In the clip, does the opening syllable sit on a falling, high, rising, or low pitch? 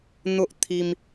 high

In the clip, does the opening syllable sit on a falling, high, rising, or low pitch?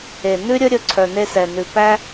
low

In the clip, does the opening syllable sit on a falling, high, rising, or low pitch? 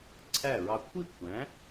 falling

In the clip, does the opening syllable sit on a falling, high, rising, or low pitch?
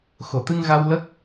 low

